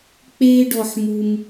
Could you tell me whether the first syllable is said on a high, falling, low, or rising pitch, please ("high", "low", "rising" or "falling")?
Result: high